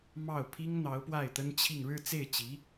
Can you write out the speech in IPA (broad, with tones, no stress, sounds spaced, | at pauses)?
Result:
m ɑ˥˩ ʊ̯ pʰ i˥ ŋ n̪ ɑ˧˥ ʊ̯ p w a˥˩ ɪ̯ t̪ ə˥ n t͡ɕʰ i˥˧ ŋ ɻ ɻ̩˥˧ t͡s e˥˩ ɪ̯ t͡ɕ i˧˥